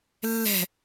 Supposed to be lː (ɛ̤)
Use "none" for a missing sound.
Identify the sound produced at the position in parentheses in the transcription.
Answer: ɛ̤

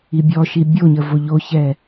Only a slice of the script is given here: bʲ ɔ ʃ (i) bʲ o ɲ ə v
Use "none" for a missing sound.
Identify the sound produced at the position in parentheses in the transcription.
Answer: i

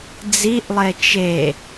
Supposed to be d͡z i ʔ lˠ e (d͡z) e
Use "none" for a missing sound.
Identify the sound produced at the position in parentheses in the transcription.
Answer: t͡ʃ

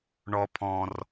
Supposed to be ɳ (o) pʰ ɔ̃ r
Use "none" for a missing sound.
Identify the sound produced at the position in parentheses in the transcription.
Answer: ɔ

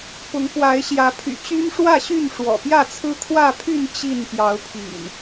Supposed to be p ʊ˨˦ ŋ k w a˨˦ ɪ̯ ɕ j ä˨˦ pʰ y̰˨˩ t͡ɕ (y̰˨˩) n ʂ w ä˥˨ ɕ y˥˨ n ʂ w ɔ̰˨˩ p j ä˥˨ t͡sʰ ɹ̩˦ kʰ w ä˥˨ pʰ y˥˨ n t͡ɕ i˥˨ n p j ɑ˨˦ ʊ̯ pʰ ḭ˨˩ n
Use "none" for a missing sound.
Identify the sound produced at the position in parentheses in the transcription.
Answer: y˦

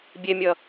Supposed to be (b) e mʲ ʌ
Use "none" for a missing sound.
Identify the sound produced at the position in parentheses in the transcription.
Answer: bʲ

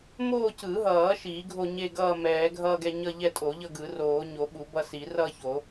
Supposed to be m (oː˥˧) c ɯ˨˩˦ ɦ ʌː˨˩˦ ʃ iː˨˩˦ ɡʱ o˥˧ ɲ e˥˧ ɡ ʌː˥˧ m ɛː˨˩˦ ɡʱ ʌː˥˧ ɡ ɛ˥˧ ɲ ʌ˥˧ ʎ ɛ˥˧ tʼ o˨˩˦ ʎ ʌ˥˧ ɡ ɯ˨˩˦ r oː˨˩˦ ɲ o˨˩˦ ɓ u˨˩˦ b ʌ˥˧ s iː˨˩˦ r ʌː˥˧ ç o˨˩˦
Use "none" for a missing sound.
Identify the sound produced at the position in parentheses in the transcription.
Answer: oː˥˧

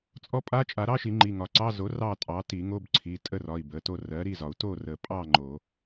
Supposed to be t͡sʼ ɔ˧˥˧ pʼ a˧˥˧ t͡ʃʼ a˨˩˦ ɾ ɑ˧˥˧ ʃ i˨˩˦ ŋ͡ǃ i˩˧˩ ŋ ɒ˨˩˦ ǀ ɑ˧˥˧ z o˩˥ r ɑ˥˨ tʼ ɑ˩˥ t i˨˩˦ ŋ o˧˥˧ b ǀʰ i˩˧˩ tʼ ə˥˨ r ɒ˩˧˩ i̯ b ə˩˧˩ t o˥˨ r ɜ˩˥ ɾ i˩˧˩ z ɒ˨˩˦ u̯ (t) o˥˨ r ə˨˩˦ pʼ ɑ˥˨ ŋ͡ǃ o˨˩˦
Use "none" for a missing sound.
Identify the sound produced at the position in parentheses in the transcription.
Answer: t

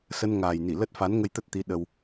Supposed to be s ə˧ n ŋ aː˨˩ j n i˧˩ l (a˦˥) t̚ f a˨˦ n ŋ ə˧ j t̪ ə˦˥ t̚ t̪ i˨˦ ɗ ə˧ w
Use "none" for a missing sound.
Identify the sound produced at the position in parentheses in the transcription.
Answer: ə˦˥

